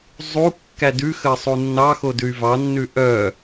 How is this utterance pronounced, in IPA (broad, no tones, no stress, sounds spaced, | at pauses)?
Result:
zˤ u kː æ d ʉ x ə sˤ u nː ɑ x o d ʉ y̯ v ɑ nː ʉ ʔ œ